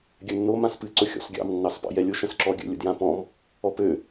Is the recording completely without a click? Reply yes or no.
no